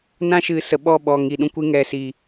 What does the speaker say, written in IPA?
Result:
nã˦ʃɨ˨˦sə˨ɓɔ˦˨ ɓɔ˨ŋi˨ ɗũ˦kʷɨ˧ŋɛ˨siː˨

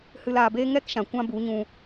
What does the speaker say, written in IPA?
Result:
hɨ˧laː˧beː˦ ŋɛ˦kʃã˨ kʷã˦bu˨˦ɲũ˧

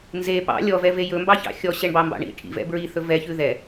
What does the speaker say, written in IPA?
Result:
nze pɑ̰ lʲɔvɛve jɵmbɑçɑ̰ xʲɔɕɛɳbɑmbɑ̰ ɳḭ ʈʰḭvɛ̰ bɹiθɵ vɛçʉ ðɛ

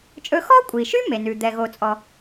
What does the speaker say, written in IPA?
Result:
t͡ʃʼɵ˧xɔ˥kʷʼi˩ʃy˥ me˩nʉ˩ d̪ɛ˩ɣo˩t͡sʼɔ˩

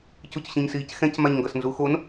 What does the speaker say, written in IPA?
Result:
cucɕĩɲsiːcxɛ̃c maɲŋɡʌsnzuxon

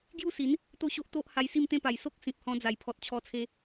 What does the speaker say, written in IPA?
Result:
ɡju˥˧si˨˦n | t̪o˥˧ɕo˦ʔt̪o˦ʔ ha˧jsi˥˧mt̪ẽ˥˧pa˨˩j so˦k̚sĩ˨p̚hɔ̃˧d͡za˨˩j pʰɔ˨t̚t͡ɕʰɔ˧t͡sʰe˧

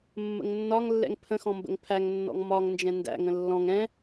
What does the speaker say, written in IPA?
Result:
mːə̰ŋnːɒŋlːɛ̰ŋ pʰə̃xɔ̃ mbə̰ŋpʰæŋnːɔ̰ŋ mɒŋ nd͡ʒɛ̃ndæ̰ŋə̃ lːɔ̃ŋ ɛ̃

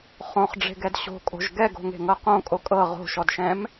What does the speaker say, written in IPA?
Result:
χõχɖ͡ʐe̤ɡɛd ɕo̤kʼo̤ʒ ɡɛɡo̤ŋe̤ŋɤ qõ kʼokʼɤ ʁo̤ʃɔdʃɛ̃m

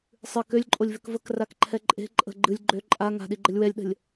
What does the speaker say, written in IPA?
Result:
sˤɨ kølʲǃʼolʲvøk vəkrakǃʰɛ ǃʼe̤ ǃʼə̤ ɡ͡ǃɨlʲ ɡ͡ǃø ǃʼa ŋa̤ɗiɡ͡ǃəlʲ wɛlʲɗə̤lʲ

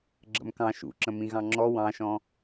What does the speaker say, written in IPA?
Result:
ɡ͡ǁə̰mkɑ̃ ʃṵǁə̃ mĩɣɑ̃ŋ͡ǁɔ wɑ̃ʃɔ̃

